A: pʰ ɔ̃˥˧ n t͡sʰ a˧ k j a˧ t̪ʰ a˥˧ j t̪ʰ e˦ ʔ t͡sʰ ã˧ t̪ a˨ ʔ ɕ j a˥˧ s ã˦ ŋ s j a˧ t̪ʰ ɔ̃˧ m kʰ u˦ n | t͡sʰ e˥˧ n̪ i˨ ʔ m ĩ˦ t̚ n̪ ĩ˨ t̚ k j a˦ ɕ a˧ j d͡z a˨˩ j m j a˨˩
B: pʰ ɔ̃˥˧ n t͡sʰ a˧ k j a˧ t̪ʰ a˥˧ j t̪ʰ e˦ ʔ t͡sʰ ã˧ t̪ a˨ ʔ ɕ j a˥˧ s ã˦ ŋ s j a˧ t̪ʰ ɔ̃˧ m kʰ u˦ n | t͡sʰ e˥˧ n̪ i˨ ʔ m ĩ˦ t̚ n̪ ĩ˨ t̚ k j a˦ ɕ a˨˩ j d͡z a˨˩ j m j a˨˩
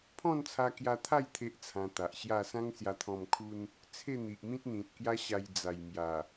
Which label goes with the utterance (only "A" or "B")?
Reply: A